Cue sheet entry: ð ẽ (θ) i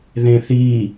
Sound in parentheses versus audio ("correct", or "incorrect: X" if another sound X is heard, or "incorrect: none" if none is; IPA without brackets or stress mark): correct